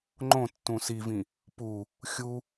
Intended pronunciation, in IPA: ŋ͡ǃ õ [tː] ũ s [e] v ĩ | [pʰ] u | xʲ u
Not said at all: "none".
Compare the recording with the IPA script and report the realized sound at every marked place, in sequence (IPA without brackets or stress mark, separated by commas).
tː, i, p